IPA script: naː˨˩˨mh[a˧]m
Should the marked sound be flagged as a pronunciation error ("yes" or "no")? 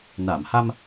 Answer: no